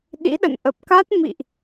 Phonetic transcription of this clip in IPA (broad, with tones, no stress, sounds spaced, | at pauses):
ɗ ḭ˧˥ ɗ ə̰˧˨ n ʔ ə˨˩ p̚ k a˦˥ t̚ m ḭ˧˨ ʔ